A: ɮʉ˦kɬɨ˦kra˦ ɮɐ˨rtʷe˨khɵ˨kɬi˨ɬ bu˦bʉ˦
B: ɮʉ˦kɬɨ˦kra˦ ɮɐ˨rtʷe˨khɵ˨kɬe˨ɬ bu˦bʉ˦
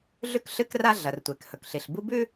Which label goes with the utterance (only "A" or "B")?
A